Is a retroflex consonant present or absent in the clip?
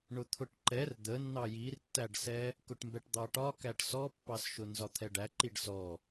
present